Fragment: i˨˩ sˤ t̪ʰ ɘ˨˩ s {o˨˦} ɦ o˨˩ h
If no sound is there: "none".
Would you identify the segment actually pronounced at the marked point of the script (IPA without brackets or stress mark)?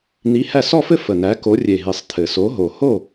o˨˦